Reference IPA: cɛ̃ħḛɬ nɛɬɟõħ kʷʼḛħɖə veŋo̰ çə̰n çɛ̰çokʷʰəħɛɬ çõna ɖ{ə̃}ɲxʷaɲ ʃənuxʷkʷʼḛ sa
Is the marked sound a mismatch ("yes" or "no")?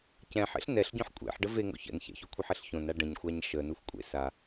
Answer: no